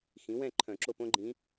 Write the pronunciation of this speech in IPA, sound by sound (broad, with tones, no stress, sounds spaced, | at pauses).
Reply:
x ĩ˩˥ w ɛ̃˥˨ ǃʰ œ̃˧˩˧ ǁ o˥˨ p õ˥ ɡ͡ǃ ĩ˧˥